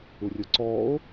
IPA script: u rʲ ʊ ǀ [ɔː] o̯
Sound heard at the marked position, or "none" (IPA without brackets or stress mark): ɔː